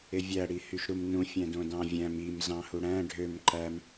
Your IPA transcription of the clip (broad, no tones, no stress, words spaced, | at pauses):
evʲæ ɽihyʃɾumnũ fʲæ̃dõdɑ̃vʲæ̃m im zɑ̃huɽæ̃ ɖʱøm ǃæm